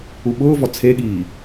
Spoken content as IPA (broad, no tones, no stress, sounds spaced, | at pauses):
u ɓ ʊː v ɔ t͡sʰ e ɠ iː